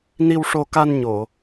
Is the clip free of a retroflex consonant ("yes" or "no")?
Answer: no